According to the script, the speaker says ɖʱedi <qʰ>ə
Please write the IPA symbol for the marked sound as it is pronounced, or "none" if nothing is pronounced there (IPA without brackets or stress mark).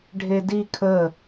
kʰ